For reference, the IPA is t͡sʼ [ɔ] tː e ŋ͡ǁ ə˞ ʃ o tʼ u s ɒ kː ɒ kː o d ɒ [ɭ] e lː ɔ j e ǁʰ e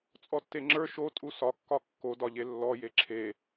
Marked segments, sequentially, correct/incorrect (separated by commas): correct, incorrect